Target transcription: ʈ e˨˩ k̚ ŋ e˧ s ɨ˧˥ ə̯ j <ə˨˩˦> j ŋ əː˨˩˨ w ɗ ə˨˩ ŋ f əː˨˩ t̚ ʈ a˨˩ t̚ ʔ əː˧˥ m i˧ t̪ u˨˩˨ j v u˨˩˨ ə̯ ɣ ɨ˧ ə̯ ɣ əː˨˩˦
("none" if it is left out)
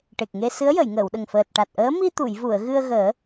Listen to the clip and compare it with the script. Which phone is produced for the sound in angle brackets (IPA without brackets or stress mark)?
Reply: ə˨˩˨